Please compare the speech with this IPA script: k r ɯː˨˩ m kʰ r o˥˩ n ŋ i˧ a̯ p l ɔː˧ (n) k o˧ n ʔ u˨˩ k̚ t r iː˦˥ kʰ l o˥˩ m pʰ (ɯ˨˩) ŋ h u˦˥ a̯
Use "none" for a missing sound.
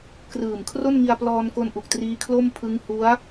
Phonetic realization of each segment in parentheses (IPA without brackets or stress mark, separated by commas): n, ɯ˦˥